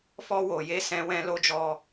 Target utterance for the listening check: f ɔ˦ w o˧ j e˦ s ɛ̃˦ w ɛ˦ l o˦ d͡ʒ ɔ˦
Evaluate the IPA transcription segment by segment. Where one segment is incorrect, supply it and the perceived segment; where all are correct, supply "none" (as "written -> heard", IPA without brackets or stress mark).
ɛ˦ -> ɛ̃˦